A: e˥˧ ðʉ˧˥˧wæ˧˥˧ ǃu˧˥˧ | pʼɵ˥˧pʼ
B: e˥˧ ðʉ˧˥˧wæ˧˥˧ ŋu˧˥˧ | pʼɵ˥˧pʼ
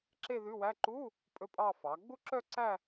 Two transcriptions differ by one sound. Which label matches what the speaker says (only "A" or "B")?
A